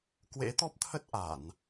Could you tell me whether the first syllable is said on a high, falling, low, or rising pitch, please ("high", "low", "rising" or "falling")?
rising